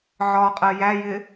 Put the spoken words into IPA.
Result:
ʕ ɒ qʼ ɜ j æ j ɪ

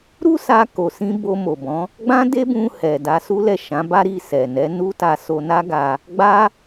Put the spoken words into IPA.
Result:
ɾ u˦ s a˧ k o˧ s ĩ˦ b o˧ m o˨ b ɔ̃˨˦ | ɡ͡b ã˦ d e˦ b ũ˧ h ɛ˨ d a˧ s u˦ l ɛ˦˨ ʃ ã˨˦ b a˦ ɾ i˦˨ s ɛ˨ n ɛ˨˦ n u˦ t a˧ s o˧ n a˦ ɡ a˧ | ɡ͡b a˦

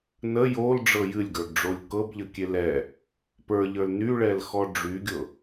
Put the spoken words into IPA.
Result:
n ə j o l ɖ͡ʐ ɤ j ɨ lʲ ɡ ə˞ ɡ ɖ͡ʐ o lʲ k ɤ b ʎ ə kʲ e l ɛ | p ə˞ ʎ ə˞ l n y ɭ ɛ l x ɔ ɖ͡ʐ y ɡʲ ɤ

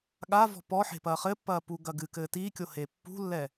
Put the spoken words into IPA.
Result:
ɠ a v ɔ̤ p ɔ ħ e̤ p ɐː χ ɘ pː ɐː p u ɡ ɐ ɡ ɨ k ɘː t i kʲ o h e pː ṳ lː ɛ

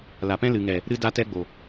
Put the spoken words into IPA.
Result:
l a˨ p ɛ̃˦ l ɨ˨ ŋ ɛ˨ | ɾ ɨ˦ d a˦ t ɛ˦ ɡ͡b o˨

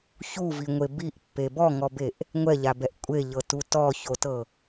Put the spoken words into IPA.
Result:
ç u v i ŋʷ e b i ʔ pː e b ɔ ŋ ɔ b e ʔ | ŋʷ ɛ ʎ a b ɛ ʔ kʷʼ e ʎ ɤ t u t ɔ ç o t ɤ

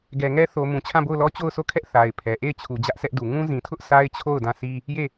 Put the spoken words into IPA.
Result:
ɡ ɛ˨ ŋ ɛ˦ θ o˨ m ũ˨ t͡ɕʰ ã˦˨ b o˦˨ ʊ̯ l ɔ˦ t͡ɕ o˦˨ ʊ̯ s o˦˨ kʰ ɛ˦ ʔ θ a˨ ɪ̯ pʰ ɛ˨ ʔ e˦˨ ɪ̯ t͡ɕʰ u˨ d͡ʑ ä˦ ʔ sʰ ɛ˦ ʔ d u˨ ŋ ũ˦ z ĩ˨ tʰ ʊ˦ ʔ sʰ a˦ ɪ̯ t͡ɕʰ o˦˨ ʊ̯ d ã˦˨ s i˦ | j e˦˨

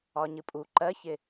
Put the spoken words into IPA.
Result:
ɒ ɲ ɨ pʼ u ǃ ɜ ç ɪ

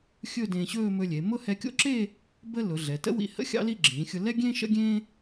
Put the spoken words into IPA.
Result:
xʲ ɵ˥˧ d ẽː˧ ɕ ɵː˥˧ m ɵ˧ lʲ e˩˧ m ʊ˥ h ɛ˧ kʲ o̰˥˧ ǁ e˥˧ | b ə˥ l ʊ˩˧ ɮ ɛ˩˧ t ə̰˥ w ḭ˧ h ə̰˥ xʲ ɑ̰˥ l i˥˧ ɡ͡ǁ ĩː˩˧ xʲ ʊ˧ l ɛ˥ ɡʲ ẽ˥ ʃ ə̰˥ ɡʲ ẽː˥

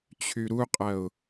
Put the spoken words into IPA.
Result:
t͡ɕʰ y ɾ u qʼ ɐ ʊ̯

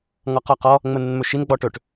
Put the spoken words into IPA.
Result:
ŋ ɔ q ɔ q ɔ | ŋ͡m ə n ə n m ɵ ʃ i n ɡ͡b ɔ ʈ ɵ ʈ

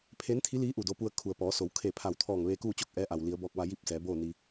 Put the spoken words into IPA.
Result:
pʰ eː˧˥ n t̪ʰ i˧˥ l iː˧˥ ʔ u˧˩ d o˧ p u˧ ə̯ kʰ u˩ ə̯ p ɔː˩˧ s o˩˧ w kʰ e˧˩ pʰ a˧˩ w t̪ʰ ɔː˧˩ ŋ ʋ eː˧ k uː˥˨ t͡ɕ o˥˨ k̚ ʔ ɛː˧˥ ʔ a˩ w l i˩˧ ə̯ b ɔː˧ k̚ ʋ a˧ j i˥˨ p̚ s ɛː˩˧ b oː˥˨ n i˧

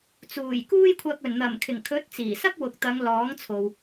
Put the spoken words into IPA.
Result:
t͡s uː˨˩ j k uː˥ j kʷʰ ɐ˧ k̚ ɵ˨˩ n n̪ ɐ˨˩ m kʰ ɪ˨˩ ŋ kʰ ɵ˨˥ t̚ t͡s iː˨˩ s ɐ˥ k̚ w ʊ˨ k̚ t̪ ɐ˨˧ ŋ l ɔː˨˥ ŋ t͡sʰ o˨ w

